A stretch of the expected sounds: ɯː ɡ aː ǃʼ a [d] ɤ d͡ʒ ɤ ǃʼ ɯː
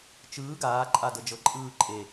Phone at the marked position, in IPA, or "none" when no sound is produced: d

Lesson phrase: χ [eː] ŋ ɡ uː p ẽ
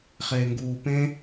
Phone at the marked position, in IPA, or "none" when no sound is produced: eː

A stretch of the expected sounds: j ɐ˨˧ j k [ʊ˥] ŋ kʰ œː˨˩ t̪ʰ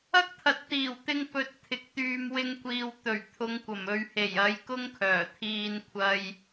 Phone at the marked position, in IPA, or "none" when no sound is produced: ʊ˥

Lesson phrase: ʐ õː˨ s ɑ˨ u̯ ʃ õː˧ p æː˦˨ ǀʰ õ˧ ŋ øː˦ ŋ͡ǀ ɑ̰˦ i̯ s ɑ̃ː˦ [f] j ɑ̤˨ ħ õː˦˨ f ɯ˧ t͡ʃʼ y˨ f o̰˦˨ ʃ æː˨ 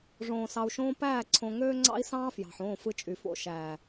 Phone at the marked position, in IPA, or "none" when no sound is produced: f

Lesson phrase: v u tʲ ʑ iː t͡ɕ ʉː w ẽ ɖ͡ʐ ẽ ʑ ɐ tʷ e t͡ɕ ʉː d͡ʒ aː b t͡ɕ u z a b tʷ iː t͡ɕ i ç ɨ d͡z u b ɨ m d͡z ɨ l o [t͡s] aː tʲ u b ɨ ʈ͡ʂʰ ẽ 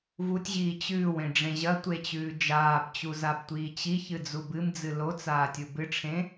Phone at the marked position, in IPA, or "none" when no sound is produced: t͡s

